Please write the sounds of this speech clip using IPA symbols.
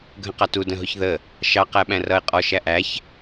ɡʱ ə̃ q ɑ t u d ə̃ ɦ ʊ ç ð ə | ʃ ɑ q æ ɓ æ̃ r ʌ ɪ̯ qʼ ɔ ʃ æ ʔ æ ç

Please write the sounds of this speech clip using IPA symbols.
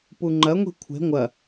p u ŋ͡ǃ ɐ ŋʷ i̤ kʷʰ e̤ ŋʷ ɐ

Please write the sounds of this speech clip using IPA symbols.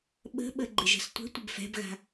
ɓ ə̤ ɓ ə ɡ͡ǃ ɪ ʒ ə̤ s tʷ ə̤ tʷ ə b f ɛ̤ b ɣ a̤

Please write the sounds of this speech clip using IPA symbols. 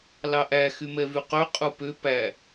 l ɑ ʔ æ x y m ɛ v y q ø qʼ u p ø p æ

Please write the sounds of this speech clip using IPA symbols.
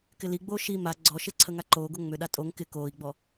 k ɪ l i ɡ͡b oː ʃ i m a ɡ͡ǀ ɔ ʃ ɪ ǀʰ ə ŋ a ǃ oː ɡ o ŋ͡m ʏ ɗ a tʼ o ŋ k ɪ k oː i̯ ɡ͡b ɔ

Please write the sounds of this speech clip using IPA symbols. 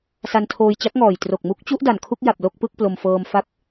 s a˧ n tʰ oː˧ j t͡ɕ a˦˥ k̚ ŋ ɔː˨˩ j t r o˨˩ k̚ m u˦˥ k̚ t͡ɕ u˦˥ ʔ d a˨˩ n kʰ u˥˩ k̚ j a˨˩ p̚ l o˥˩ k̚ p ɯ˥˩ k̚ p l o˧ m f ɤː˧ m f a˥˩ k̚

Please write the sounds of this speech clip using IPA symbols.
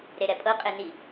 ɾ e ɾ ɛ pʼ ɤ qʼ e n i

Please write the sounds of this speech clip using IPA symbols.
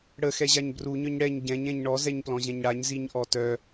ɽ ə x ɛ ʑ a ɲ b r u ɲ œ ɲ ɽ ɛ ɲ ɟ ɛ̃ ɲ ɛ̃ ɲ ɳ ɔ z ɛ ɲ p l ɔ̃ ʑ ɛ̃ ɲ ɽ a ɲ z i ɲ ʔ ɔ t œ

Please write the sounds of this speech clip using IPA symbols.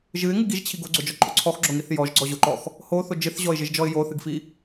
ʒ ɨ ɪ̯ ŋ ɨ ɡ i ʒ t͡ɕʰ i ɡ o ɡ͡ǀ o d͡ʒ ɔ ǃʼ o ǀʰ ɔ x ɡ͡ǁ o ŋ i θ j ɔ ʒ ɡ͡ǀ ɔ ʑ o ǃ ɔ x | h o θ o d͡ʒ ɨ θ ʑ ɔ ɪ̯ ʒ ɨ ʒ d͡ʒ ɔ ɪ̯ j o θ ɨ ɡ f i

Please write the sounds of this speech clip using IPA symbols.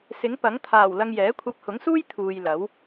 s ɪ˨˥ ŋ p ɐ˨˥ ŋ t̪ʰ aː˨˩ w l ɐ˧ ŋ j ɛː˨˥ kʷʰ ɐ˧ p̚ h ʊ˨˥ ŋ s uː˥ j t̪ʰ uː˨ j l ɐ˨˥ w

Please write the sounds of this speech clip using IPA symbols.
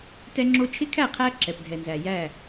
t ɛ˦ ŋ͡ǁ o˦ t͡ʃʰ ɪ˦ kʰ æ˦˨ qʰ æ˦ ǁ ɛ˨ p dʱ ɛ˨ n z æ˨ j æ˦˨

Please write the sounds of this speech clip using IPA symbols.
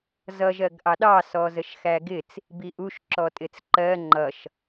z ʌ ʒ ɜ ɡ ʔ ɑ ɗ ɑ s ɔ z ə ʃ x æ ɡ ɪ t͡s | b i ʔ u ʃ ǁ ɔ tʼ ɪ t͡s ǃ ɜ ŋ͡ǃ ʌ ʃ

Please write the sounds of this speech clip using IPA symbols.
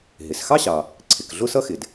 ɦ ɪ˩ s x ɑ˥ ɕ ɑ˩ | ǀʰ ɪ˩ k ɮ ʊ˥ s ʌ˥ x ɪ˩ d

